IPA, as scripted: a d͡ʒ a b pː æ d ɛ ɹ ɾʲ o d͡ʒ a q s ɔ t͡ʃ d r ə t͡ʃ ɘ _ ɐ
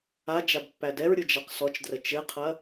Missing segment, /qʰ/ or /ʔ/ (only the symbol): qʰ